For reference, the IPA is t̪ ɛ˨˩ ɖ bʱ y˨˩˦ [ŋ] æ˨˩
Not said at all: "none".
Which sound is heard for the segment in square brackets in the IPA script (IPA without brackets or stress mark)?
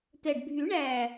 ɳ